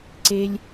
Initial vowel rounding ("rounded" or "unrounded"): unrounded